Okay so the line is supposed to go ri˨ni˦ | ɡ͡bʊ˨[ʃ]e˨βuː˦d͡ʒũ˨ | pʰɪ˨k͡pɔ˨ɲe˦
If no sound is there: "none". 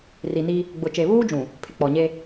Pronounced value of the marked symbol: t͡ʃ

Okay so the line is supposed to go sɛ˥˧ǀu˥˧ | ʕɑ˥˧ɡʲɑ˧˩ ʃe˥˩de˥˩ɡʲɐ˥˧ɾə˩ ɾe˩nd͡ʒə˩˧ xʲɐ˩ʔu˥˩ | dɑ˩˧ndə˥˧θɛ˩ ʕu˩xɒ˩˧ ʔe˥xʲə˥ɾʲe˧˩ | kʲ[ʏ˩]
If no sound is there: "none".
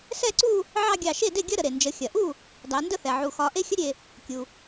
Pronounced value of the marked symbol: u˩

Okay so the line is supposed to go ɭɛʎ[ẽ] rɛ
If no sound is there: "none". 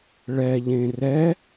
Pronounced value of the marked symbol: ẽ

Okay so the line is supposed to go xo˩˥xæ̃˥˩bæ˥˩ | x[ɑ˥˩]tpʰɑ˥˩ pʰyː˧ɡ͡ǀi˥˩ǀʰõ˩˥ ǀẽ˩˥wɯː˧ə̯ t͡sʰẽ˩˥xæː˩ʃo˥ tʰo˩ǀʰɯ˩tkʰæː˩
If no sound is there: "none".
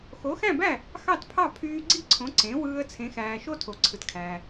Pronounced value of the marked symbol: ɑ˥˩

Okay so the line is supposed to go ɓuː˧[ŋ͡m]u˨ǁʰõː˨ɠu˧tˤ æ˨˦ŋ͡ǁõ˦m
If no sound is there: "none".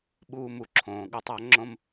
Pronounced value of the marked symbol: m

